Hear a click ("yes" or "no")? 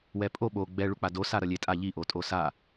no